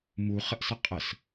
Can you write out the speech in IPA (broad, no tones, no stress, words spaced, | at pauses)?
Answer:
muχəʔsə qʼəs